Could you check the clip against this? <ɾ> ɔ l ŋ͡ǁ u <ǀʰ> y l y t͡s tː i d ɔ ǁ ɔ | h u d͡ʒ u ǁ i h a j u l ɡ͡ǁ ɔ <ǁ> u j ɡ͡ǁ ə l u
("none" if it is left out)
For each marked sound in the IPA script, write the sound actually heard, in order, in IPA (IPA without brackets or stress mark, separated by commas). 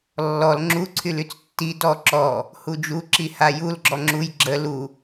lː, ǀʰ, ŋ͡ǁ